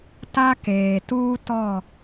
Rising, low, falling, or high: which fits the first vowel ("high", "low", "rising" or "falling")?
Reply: high